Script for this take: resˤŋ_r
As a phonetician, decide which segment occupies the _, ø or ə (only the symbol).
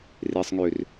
ø